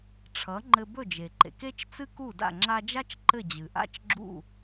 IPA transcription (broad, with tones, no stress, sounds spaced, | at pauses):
ʈ͡ʂʰ ʌ˩˥ ŋ͡ǃ ɘ˧ b ɵ˥˩ d͡ʒ e˩ ǃ ḛ˩ k e˥ t͡ʃ t͡s ɨ˥ k u˥˩ d a̰˥˩ ŋ͡ǁ a˧ d͡ʒ a˥ t͡ʃ ǃ ɘ˥˩ d͡ʑ ɨ˩ ʔ a̰˥ t͡ʃ ɡ͡ǁ ṵ˥˩